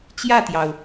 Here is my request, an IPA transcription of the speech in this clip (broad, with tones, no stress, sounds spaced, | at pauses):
t͡ɕ j ä˥˨ t̪ j ɑ˩ ʊ̯